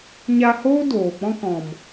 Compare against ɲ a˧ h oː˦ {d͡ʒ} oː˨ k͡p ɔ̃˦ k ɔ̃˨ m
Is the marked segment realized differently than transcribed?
yes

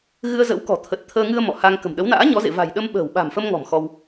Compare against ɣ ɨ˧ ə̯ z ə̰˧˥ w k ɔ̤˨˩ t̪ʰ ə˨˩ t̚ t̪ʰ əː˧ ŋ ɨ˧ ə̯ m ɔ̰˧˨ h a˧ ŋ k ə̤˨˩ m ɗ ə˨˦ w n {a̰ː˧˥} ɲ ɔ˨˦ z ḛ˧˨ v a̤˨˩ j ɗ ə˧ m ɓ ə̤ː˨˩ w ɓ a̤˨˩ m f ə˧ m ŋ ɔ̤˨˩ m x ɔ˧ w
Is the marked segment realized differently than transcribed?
no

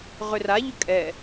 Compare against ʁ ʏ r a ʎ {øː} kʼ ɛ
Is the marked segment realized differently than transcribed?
yes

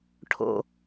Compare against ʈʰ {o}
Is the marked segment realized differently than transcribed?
yes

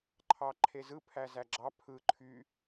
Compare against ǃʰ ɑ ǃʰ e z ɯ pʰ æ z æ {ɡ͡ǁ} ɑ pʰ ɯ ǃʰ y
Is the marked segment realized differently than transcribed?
no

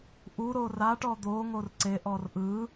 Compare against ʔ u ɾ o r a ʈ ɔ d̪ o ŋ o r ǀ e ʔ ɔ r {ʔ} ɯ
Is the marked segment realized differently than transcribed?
no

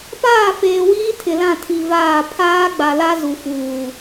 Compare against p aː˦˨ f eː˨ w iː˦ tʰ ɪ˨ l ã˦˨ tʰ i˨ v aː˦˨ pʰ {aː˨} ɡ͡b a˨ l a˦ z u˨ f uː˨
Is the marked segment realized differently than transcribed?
yes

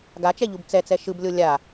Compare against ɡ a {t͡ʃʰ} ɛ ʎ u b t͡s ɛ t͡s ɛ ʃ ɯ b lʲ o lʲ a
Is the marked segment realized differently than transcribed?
yes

